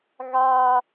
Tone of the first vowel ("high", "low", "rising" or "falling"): high